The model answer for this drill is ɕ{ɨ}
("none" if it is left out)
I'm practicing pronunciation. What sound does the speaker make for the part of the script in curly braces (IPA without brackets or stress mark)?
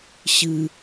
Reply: ɨ